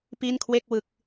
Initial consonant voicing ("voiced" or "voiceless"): voiceless